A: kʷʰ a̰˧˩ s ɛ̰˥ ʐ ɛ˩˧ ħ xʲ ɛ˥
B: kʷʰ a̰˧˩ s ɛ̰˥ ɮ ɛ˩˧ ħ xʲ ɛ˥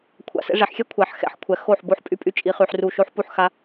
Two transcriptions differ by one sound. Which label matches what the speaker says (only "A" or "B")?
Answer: A